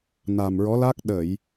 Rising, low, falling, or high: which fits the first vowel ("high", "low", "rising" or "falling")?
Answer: low